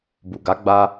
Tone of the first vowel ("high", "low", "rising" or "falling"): low